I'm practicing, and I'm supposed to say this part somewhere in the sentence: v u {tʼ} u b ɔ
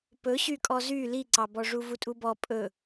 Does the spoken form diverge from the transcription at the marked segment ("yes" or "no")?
no